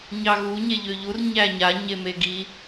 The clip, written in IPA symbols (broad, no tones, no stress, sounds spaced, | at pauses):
ɲ ɑ ɣ u ɲ e ʎ ø ʎ u r ɲ æ ɲ a ɲ e m e ɡ i